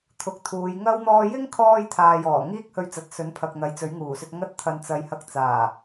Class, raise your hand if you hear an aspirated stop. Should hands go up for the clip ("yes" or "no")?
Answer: yes